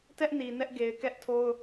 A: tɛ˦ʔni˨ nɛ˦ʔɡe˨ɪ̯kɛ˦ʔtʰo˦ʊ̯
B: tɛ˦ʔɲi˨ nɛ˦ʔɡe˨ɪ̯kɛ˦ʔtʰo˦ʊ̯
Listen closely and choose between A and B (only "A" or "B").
A